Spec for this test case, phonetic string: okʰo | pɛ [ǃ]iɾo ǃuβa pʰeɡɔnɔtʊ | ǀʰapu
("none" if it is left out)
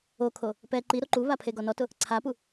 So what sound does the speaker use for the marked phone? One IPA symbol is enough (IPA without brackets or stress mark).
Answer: ǃ